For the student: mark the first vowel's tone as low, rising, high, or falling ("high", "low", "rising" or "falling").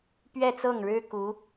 falling